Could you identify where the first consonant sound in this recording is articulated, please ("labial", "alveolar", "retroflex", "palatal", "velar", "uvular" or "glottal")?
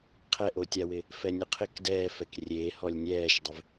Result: uvular